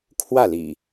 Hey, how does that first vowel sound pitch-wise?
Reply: falling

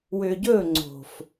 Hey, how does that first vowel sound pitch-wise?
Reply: low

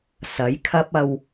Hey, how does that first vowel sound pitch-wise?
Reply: rising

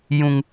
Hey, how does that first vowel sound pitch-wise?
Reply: high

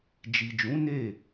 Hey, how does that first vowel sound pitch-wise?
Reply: low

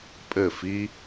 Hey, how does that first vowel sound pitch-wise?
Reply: falling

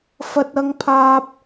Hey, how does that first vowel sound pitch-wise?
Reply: high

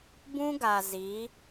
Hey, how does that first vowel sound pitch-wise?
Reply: high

